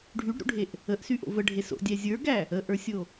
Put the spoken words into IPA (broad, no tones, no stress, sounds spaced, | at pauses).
ɖʱ y ɖ ɾ ṵ ɖʱ e ʔ | ə ʔ s y ʔ o̰ v ə ɖʱ e s o̰ dʲ æ zʲ ə˞ ɡ æ | ə ʔ ə˞ sʲ o